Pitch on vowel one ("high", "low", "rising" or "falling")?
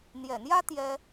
low